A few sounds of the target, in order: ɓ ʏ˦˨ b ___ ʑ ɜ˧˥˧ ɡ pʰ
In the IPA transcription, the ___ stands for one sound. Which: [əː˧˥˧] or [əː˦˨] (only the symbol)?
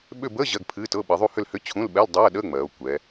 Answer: əː˧˥˧